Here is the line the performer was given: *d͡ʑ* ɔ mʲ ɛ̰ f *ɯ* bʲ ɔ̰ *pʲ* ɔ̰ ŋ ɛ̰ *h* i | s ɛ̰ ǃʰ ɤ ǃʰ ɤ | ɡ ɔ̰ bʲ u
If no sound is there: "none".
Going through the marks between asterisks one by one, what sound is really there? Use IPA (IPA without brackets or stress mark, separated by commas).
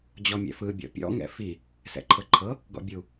d͡ʑ, ɯ, pʲ, f